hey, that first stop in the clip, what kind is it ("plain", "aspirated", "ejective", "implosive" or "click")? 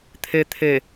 aspirated